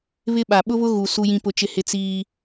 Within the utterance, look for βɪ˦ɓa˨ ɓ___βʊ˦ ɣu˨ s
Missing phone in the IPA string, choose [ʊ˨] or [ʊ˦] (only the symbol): ʊ˦